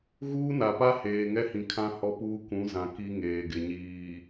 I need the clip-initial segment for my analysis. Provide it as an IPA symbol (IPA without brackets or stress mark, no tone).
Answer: ɣ